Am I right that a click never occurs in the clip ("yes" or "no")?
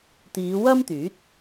yes